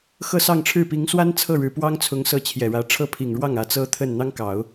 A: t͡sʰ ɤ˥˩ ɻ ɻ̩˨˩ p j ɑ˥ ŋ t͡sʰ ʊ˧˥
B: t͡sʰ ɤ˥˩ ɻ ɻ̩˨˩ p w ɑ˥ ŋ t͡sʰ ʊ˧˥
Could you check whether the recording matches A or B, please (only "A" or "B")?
B